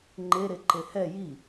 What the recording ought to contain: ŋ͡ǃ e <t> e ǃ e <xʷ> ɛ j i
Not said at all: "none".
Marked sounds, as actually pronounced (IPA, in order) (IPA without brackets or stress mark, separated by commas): ɾ, h